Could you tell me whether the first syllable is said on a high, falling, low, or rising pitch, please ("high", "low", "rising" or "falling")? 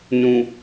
low